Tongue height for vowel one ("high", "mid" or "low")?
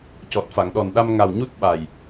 mid